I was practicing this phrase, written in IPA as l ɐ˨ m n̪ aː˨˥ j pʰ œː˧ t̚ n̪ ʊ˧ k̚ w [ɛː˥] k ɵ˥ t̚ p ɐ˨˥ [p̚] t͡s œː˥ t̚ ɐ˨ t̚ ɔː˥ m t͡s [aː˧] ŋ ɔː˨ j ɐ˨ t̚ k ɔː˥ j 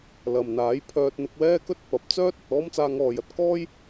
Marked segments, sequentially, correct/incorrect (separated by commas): correct, correct, correct